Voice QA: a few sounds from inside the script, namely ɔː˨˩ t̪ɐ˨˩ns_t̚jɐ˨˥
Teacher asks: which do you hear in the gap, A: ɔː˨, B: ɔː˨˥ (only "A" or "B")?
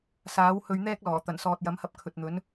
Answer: A